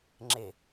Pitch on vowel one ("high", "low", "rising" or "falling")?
low